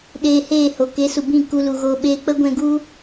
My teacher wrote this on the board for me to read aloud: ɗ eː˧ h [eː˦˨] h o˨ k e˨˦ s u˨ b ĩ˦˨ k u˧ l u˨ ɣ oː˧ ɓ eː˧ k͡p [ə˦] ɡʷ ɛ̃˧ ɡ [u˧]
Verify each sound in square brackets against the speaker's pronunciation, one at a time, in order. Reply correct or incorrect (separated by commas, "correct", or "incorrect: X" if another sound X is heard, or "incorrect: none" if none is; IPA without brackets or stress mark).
correct, correct, incorrect: u˦